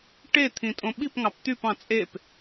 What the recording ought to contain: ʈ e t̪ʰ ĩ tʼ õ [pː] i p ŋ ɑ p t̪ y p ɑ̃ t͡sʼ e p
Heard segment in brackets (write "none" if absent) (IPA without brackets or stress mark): ɓ